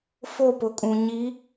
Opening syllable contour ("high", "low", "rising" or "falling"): falling